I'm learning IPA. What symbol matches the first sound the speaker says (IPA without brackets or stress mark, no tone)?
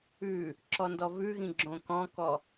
ʉ